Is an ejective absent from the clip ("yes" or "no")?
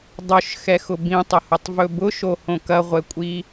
no